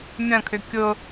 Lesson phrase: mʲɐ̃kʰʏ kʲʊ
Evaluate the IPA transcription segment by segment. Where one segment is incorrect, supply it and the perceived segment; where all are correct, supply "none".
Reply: none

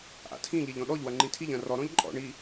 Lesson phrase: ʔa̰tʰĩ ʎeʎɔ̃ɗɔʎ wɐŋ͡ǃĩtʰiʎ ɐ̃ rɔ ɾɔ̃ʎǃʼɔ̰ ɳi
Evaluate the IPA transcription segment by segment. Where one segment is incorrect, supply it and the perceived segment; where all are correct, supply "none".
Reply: none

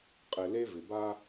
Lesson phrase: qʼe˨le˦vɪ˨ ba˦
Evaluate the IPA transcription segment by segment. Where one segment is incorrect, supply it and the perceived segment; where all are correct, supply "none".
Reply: none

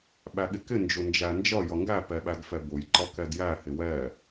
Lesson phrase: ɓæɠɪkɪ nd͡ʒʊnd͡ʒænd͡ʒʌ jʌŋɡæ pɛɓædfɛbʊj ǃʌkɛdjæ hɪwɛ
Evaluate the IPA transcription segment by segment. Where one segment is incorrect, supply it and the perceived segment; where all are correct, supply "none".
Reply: none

